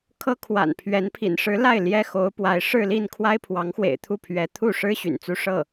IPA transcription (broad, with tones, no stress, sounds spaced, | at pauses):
kʰ ɤ˥ kʰ w a̰˨˩ n pʰ ɥ ɛ˧˥ n pʰ ḭ˨˩ n ʂ ɻ̩˧˥ l a˥˩ ɪ̯ l j ɛ˥ x o˧˥ ʊ̯ p w a˧˥ ɪ̯ ʂ ɻ̩˥˧ l i˥˩ n kʰ w a˥ ɪ̯ pʰ w ɑ˧˥ ŋ x w ḛ˨˩ ɪ̯ t̪ʰ u˥˩ pʰ ɥ ɛ˧˥ t̪ʰ u˥˩ ʂ ɻ̩˥ ɕ y̰˨˩ n t͡s u˥˧ ʂ ɤ˥˩